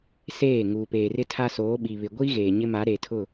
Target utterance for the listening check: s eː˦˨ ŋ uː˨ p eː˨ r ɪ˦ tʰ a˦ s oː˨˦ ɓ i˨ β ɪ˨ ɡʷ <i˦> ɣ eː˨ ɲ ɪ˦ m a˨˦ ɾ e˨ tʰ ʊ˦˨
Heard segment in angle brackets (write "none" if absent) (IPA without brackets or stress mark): i˦